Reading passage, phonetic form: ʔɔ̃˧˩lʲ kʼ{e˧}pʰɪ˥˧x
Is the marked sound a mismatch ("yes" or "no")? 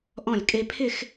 no